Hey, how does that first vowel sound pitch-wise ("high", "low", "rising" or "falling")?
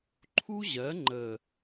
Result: high